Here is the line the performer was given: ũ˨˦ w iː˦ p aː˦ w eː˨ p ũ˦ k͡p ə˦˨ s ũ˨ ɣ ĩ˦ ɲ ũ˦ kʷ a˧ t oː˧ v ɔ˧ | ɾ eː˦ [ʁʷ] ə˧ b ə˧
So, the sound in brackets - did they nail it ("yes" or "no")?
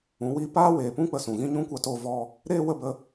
no